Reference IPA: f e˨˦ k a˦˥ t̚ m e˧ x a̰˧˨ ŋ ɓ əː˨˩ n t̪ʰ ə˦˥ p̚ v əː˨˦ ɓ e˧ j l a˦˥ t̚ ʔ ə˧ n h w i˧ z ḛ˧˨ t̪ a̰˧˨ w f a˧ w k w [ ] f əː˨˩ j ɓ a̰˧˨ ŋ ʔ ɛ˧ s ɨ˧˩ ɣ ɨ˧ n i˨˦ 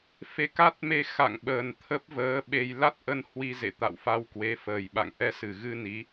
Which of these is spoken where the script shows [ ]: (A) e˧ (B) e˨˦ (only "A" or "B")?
B